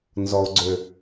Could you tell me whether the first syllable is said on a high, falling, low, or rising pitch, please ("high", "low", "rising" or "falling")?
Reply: low